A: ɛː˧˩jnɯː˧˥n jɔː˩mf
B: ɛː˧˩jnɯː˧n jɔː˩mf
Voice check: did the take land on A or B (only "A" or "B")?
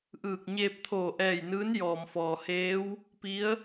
A